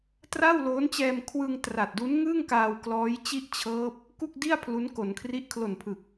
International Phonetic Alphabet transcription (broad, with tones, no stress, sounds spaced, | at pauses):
t r a˥˩ w l oː˦˥ n t͡ɕ ɛː˧ m kʰ w ɯ˧ ŋ t r a˨˩ t̚ d u˦˥ n ŋ ɯ˥˩ ŋ k aː˧ w k l ɔː˦˥ j t͡ɕ i˥˩ ʔ t͡ɕʰ ɤː˦˥ p̚ | k u˥˩ k̚ d i˥˩ a̯ pʰ l u˦˥ n k o˩˦ n kʰ r i˦˥ ʔ kʰ l o˨˩ n pʰ ɯ˨˩ k̚